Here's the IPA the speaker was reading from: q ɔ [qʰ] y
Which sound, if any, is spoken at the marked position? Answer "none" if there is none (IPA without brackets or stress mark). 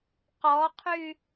qʰ